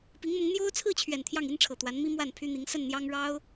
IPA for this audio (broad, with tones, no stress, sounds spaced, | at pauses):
p i˧˥ ŋ m ʊ˧˥ ŋ n̪ j o˥ ʊ̯ t͡sʰ ɹ̩˥˩ t͡ɕʰ ɥ ɛ˨˩ n t̪ʰ j ɑ˥˩ ŋ i˥ n ʈ͡ʂʰ ɤ˨˩ t̪ w a˧˥ n m i˥ m w a˥˩ n pʰ y˥ n̪ i˧˥ ŋ s ə˥˩ n n̪ j ɑ˥ ŋ ɻ ɑ˥ ʊ̯